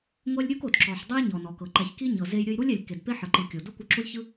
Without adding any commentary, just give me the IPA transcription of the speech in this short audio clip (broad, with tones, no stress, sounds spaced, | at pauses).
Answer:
ŋʷ ɛ˦ lʲ ɾʲ u˦ k o˨ d ǁ ɔ˨ ħ dˤ o˦ j ɲ ɔ˨ n ɔ˨ k ɤ˨ ǃ ɛ˨ ç k i˦ ɲ ɤ˨ z e˧ j ɾʲ ɯ˧ j ɾ u˦ lʲ ɛ˨ lʲ k e˨ d p e˦ ħ ɤ˨ ǃ ɯ˨ kʲ o˨ d u˦ kʷ ɯ˧ ǁ u˦ lʲ ç ɯ˦